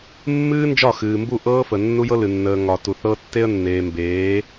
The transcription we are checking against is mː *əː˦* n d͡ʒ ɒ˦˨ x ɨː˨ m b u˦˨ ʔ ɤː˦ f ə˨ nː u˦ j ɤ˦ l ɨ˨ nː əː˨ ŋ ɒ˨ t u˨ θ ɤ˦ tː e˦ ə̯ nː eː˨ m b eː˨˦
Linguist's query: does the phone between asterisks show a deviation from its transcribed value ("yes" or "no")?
yes